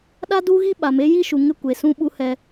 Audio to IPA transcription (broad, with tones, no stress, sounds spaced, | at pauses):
ɗ a˦ d u˦ ɣ i˦ ɓ a˨ m e˦ j i˦ ʃ u˨ ŋ ɪ˦ kʷ e˨ s ũ˦ ɓ u˦ h ɛ˦